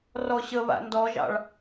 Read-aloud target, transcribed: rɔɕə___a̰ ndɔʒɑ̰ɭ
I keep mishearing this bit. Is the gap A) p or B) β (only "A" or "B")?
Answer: B